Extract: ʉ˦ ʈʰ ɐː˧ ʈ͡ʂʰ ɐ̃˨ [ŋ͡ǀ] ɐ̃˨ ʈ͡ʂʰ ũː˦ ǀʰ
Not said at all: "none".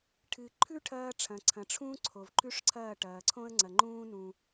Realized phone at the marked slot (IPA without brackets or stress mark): ǀʰ